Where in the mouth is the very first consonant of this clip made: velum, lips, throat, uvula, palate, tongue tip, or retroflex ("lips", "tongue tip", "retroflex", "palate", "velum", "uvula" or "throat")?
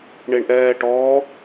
retroflex